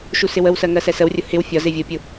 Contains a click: no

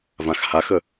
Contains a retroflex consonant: no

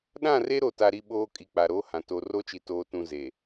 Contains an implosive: yes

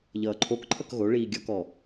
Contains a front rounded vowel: no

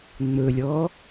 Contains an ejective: no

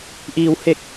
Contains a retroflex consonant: no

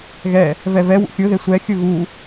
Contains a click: no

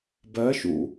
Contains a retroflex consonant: no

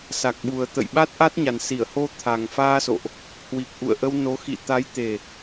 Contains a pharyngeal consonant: no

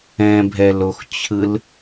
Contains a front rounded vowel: no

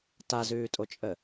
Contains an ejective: yes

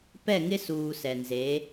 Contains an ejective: no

